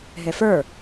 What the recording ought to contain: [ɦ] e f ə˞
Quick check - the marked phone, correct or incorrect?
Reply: correct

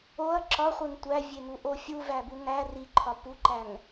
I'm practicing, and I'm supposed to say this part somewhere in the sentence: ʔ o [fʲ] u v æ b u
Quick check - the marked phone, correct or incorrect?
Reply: correct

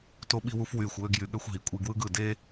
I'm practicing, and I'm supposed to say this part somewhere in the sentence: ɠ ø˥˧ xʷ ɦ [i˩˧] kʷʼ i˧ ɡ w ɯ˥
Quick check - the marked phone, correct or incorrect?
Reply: correct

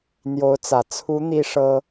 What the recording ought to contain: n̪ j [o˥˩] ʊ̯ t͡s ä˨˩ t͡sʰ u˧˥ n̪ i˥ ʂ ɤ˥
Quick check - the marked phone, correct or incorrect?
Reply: incorrect: o˧˥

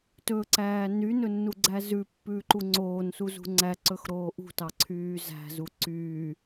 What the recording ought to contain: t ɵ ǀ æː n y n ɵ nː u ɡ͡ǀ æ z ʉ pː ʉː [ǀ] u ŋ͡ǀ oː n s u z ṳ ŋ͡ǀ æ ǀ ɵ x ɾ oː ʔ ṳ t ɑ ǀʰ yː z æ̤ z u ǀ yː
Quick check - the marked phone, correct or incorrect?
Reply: incorrect: ǃ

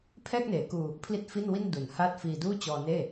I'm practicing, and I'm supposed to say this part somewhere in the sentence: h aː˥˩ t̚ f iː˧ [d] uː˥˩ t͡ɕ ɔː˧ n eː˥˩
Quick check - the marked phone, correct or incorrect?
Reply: correct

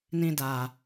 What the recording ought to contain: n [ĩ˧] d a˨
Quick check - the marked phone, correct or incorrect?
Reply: correct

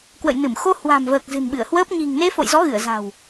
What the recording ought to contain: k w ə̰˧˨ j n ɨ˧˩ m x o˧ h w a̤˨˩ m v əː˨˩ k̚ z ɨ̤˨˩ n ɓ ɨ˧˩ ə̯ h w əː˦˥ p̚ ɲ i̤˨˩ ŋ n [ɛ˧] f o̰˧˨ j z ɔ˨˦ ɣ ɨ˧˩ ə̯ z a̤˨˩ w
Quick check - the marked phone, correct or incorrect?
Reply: incorrect: e˧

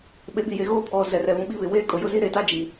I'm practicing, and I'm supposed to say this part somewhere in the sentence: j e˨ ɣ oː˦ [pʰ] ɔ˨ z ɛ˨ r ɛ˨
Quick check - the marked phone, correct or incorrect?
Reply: correct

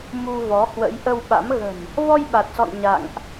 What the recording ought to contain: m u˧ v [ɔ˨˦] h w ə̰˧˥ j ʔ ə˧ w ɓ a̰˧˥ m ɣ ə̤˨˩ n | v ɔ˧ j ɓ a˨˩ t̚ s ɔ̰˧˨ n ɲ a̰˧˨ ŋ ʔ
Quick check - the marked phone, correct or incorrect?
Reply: correct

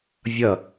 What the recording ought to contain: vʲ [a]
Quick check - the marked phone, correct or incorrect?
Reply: incorrect: ʌ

